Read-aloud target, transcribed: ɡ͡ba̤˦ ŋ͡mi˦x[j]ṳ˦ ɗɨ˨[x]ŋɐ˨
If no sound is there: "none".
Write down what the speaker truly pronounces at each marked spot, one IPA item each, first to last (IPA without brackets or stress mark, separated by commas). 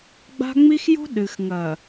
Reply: j, x